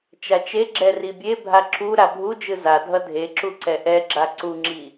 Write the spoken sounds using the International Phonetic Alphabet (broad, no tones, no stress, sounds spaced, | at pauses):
t͡ʃ a t͡ʃ e ɡ͡ǁ ɛ r i bʲ e bʱ a ǁʰ u ɾ a bʱ u d͡ʒ ɯ z a dʱ ʌ dʱ e ǁ u ǀ ɛ ʔ ɛ ɡ͡ǁ a ǀ u ŋ͡ǁ i